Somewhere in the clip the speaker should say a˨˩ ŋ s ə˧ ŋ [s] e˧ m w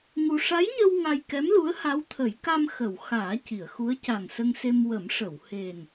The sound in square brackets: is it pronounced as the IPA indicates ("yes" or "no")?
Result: yes